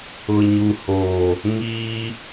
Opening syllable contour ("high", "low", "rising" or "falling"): low